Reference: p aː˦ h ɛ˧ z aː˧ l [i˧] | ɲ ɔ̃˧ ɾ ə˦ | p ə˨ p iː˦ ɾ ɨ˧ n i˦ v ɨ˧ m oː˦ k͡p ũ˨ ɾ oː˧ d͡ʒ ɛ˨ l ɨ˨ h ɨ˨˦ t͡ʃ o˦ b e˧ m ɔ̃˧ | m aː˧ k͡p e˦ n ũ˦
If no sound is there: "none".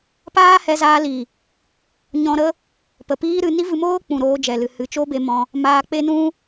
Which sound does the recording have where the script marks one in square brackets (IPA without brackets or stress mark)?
i˨